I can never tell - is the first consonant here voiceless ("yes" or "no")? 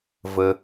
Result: no